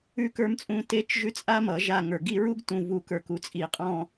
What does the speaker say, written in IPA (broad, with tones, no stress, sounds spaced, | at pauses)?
ʉ˦ k ə˞˦ m t͡sʼ ũ˦ t e˦˨ t͡ʃ ʒ ʉ˦ t͡sʼ a˦ m ʌ˨˩˦ ʒ a˦˨ ŋ ə˞˨ ɡ i˦˨ ɹ u˦ ɡ t ũ˨ v u˨ k ə˞˨ k u˩˥ t͡sʼ i˨˩˦ qʼ ɔ̃˦˨